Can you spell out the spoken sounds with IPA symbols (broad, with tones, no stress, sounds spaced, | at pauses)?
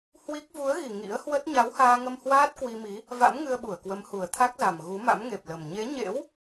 h w i˦˥ k̚ v u˨˦ ə̯ ɣ i˨˩ ŋ ḭ˧˥ ə̯ h w ə˦˥ t̚ ɲ a˨˦ w h aː˧ ŋ ə˧ m h w aː˦˥ t̚ k w i˧ m i˨˦ | v a̰˧˥ m ŋ ɨ˧ ə̯ ɓ u˧˩ ə̯ k w ə˨˦ m h u˨˩ ə̯ t̪ʰ a˦˥ k̚ z a˨˩ m ɣ u˨˦ m a̰˧˥ m ŋ e˨˩ p̚ l ə˨˩ m ɲ e˨˦ ɲ ḛ˧˥ w